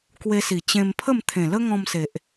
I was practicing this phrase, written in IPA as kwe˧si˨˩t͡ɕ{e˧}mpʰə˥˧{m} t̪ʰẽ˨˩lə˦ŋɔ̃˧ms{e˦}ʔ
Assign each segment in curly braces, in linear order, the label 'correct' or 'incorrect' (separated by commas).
incorrect, correct, incorrect